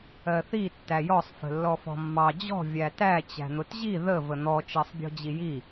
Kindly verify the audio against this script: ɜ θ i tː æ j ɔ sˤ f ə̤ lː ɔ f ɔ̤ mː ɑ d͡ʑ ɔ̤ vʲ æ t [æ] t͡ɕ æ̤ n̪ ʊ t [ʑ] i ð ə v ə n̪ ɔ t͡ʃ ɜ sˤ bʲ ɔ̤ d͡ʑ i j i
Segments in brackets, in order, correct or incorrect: correct, correct

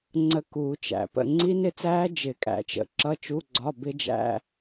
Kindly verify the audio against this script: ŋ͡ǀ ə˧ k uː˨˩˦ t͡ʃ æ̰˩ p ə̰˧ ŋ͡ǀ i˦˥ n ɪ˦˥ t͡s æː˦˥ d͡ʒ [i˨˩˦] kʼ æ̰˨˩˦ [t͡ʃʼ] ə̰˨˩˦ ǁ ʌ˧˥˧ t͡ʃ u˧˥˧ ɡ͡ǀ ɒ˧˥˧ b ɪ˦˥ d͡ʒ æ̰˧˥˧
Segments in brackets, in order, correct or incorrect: incorrect: ɪ˨˩˦, incorrect: t͡ʃ

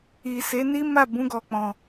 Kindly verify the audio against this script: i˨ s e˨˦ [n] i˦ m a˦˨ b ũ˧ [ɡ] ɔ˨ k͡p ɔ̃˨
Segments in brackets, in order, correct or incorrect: correct, correct

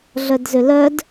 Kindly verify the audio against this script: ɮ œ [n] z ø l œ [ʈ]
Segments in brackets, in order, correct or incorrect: incorrect: d, incorrect: d

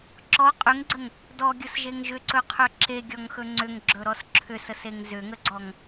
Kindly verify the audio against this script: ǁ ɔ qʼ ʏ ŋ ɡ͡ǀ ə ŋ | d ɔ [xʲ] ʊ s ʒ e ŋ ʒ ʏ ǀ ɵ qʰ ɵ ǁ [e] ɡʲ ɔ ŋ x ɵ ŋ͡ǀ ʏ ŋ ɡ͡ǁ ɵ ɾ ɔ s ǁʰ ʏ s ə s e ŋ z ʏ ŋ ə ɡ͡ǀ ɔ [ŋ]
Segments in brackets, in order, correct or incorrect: incorrect: ɡʲ, correct, correct

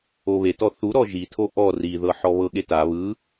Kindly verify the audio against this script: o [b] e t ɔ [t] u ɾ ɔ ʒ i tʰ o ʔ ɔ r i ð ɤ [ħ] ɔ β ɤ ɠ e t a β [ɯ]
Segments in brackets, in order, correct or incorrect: incorrect: β, incorrect: θ, correct, correct

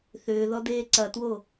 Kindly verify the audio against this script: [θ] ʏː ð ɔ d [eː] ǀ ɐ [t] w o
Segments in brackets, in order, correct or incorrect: correct, correct, correct

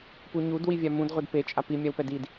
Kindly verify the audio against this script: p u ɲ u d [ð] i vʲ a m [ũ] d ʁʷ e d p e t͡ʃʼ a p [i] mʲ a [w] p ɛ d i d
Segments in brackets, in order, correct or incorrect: incorrect: w, correct, correct, correct

